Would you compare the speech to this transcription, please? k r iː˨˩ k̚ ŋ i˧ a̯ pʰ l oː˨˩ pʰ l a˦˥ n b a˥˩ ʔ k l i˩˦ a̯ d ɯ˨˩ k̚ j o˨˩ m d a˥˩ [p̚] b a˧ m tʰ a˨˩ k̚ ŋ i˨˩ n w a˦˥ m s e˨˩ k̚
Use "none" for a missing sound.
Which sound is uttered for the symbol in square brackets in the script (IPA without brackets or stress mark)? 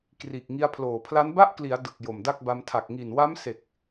k̚